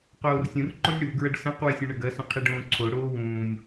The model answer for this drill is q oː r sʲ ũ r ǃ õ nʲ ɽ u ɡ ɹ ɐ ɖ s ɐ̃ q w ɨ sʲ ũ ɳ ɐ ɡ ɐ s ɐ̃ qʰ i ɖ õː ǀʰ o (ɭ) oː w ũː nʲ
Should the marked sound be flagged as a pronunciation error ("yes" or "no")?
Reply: yes